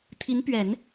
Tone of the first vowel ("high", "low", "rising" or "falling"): rising